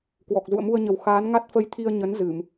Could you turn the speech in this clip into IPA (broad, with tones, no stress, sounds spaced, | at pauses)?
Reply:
k w ɔ˨˩ k̚ z ṵ˧˨ ə̯ m u˧ ə̯ ɲ ə˨˩ w x aː˨˦ n ŋ a˦˥ t̚ f ə˧ j t̪ʰ i˧ ə̯ ɲ ə˨˦ n z ɨ˧˩˨ m